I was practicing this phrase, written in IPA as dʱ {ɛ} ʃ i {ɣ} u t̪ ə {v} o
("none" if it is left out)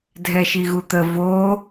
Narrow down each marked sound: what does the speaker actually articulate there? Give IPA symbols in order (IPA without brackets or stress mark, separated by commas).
ɛ, ɣ, v